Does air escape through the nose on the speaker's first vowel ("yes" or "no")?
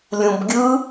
yes